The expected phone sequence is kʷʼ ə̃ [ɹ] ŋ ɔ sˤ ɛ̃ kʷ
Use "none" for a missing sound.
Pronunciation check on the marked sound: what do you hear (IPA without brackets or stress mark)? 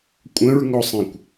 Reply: ɹ